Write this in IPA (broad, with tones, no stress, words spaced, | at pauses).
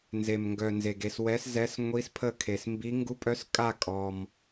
nze˩mŋɡœ˩ nze˩ɡe˧˩s wɛ˨˦szɛ˨˦s ŋʷi˨˦spʰə˧˩kʰe˩smbi˨˦ ŋɡu˨˦pʼœ˨˦skʼa˧˩ kʼɔ˩m